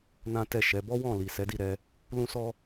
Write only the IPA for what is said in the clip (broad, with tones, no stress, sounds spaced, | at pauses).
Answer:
n ã˦ t ɛ˦˨ ʃ ɛ˨˦ b ɔ˦ w ɔ̃˦˨ l i˨ s ɛ˨˦ d i˦˨ ɾ ɛ˧ | l ũ˦ s ɔ˦